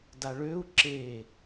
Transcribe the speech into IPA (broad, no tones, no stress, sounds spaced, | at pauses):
d a ɭ ø u̯ ǁ e